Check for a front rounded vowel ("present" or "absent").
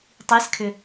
present